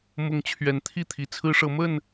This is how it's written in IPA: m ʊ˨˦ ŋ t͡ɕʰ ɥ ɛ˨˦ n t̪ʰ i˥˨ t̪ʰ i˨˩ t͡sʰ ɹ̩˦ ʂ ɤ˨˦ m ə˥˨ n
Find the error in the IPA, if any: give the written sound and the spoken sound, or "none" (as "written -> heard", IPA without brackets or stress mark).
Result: none